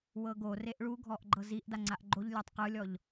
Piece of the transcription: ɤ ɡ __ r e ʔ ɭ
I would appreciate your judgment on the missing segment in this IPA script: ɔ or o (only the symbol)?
o